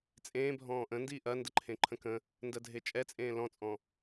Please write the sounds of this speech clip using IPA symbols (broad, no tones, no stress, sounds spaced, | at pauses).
t͡sʼ ẽː bʱ ɔ̃ː ʔ ə̃ n d iː ʔ ɐ n d ə ǃʰ ẽ ǃʰ ə̃ k ə̃ | n d ɜ dʱ e t͡ʃʼ ɛ t͡sʼ ẽː l ɔ̃ t͡sʼ ɔ̃